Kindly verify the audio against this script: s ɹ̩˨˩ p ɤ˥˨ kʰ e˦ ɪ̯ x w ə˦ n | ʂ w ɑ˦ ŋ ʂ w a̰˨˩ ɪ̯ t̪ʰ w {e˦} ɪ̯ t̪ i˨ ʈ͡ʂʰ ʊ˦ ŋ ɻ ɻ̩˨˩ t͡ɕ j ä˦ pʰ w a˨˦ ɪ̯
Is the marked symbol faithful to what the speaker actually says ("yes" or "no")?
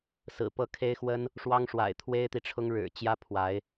yes